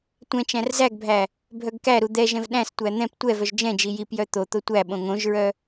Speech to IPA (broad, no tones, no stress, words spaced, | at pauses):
tʷɛ̃t͡ʃæ̃r zæɡbʱæ | bʱœɡkæɾu d̪ɛʒɛ̃v ɗæ̃stʷæ n̪ɛ̃p tʷɛvœʒ d͡ʒɛ̃d͡ʒi jipjœ t̪ot̪o tʷæ ɓõŋõʒɹœ